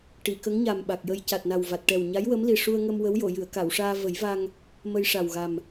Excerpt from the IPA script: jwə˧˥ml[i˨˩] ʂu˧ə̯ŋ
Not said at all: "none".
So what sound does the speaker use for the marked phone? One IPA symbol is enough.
i˨˩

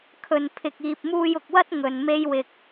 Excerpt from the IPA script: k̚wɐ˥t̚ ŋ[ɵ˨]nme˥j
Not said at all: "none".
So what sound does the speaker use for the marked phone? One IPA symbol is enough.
ɵ˨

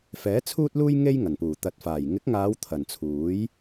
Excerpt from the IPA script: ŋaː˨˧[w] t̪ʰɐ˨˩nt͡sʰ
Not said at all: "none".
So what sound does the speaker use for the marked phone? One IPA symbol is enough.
w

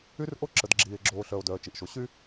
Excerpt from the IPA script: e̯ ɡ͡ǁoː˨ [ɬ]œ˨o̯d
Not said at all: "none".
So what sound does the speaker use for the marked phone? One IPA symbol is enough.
ɬ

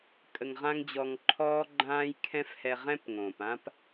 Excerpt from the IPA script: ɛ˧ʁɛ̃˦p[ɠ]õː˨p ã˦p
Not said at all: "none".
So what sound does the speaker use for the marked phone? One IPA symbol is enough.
ŋ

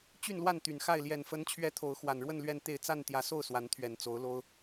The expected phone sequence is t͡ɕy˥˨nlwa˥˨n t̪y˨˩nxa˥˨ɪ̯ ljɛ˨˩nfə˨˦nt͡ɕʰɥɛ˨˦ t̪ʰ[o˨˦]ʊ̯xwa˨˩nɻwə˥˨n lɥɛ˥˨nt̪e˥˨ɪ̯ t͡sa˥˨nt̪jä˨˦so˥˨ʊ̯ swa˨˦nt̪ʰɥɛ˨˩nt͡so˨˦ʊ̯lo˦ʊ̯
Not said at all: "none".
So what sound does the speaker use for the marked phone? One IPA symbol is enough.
o˨˦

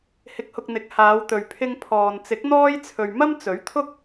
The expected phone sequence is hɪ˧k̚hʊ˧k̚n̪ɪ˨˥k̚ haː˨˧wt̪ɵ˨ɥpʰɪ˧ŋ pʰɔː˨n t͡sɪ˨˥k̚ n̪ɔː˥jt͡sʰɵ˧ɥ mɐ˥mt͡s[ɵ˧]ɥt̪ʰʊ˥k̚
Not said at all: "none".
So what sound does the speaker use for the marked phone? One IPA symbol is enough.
ɵ˨˥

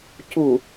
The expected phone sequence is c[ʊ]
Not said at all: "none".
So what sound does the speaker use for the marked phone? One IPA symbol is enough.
u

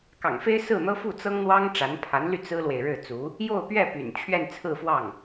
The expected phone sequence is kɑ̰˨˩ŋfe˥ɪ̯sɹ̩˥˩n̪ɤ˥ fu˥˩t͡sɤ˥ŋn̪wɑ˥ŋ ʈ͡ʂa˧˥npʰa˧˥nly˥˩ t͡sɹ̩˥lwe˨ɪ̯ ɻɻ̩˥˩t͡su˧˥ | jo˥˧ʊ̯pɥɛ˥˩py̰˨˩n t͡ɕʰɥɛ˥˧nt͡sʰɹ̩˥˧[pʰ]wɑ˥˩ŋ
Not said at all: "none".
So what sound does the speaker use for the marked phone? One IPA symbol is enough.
f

